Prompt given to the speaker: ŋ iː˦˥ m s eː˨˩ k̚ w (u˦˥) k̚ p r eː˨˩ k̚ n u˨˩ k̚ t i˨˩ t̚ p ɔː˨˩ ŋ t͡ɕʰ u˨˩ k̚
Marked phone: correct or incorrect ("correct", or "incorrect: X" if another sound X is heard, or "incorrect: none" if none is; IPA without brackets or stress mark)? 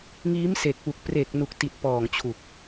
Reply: incorrect: u˨˩